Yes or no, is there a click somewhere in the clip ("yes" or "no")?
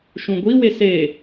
no